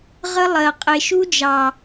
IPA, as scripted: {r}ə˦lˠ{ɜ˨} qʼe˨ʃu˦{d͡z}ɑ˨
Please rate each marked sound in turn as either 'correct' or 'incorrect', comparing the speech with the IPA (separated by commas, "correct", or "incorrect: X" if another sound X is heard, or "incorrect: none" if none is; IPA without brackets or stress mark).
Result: incorrect: ʁ, correct, incorrect: d͡ʒ